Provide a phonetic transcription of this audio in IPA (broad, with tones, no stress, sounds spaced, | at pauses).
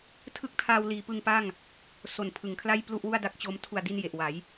tʰ ɯ˥˩ k̚ tʰ aː˧ w l iː˩˦ p ɯ˧ ŋ p a˥˩ ŋ | s o˨˩ n pʰ ɯ˩˦ ŋ kʰ l a˥˩ j p l u˥˩ ʔ w u˥˩ a̯ d a˦˥ k̚ t͡ɕ o˦˥ m tʰ u˨˩ a̯ d i˧ n j e˨˩ ʔ w a˩˦ j